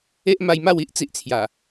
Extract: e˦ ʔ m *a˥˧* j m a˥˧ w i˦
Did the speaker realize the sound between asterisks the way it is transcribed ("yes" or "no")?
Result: no